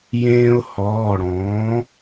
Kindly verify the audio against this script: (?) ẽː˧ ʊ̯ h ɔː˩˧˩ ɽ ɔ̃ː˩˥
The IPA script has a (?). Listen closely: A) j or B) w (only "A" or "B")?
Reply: A